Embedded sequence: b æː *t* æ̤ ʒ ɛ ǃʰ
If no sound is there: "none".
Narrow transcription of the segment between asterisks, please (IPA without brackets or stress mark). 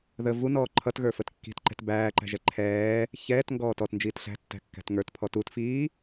ǃ